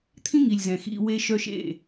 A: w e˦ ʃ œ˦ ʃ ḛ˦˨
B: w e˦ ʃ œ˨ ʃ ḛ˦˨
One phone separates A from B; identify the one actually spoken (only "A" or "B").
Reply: A